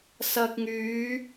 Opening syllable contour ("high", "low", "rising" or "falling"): low